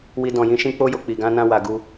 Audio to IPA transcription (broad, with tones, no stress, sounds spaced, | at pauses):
w i˧ d ɔ̃˨ j ĩ˧ ʃ ĩ˧ k͡p o˧ j o˨ k͡p i˨ ɡ ã˧ n ã˧ w a˨ ɡ u˧